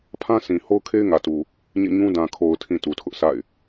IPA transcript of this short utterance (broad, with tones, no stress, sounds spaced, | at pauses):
pʰ ã˦ s ĩ˨ h o˦ ʊ̯ kʰ e˦ ɪ̯ ŋ ä˨ t u˨ | ɲ ḛ˦˨ ɲ ũ˦ d ã˨ kʰ o˨ ʊ̯ tʰ ĩ˨ t u˨ tʰ ʊ˦ ʔ sʰ a̰˦˨ ɪ̯